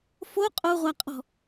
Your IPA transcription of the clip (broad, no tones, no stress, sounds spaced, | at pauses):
f o qʼ o ʁʷ a qʼ ɔ̤